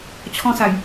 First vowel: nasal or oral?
nasal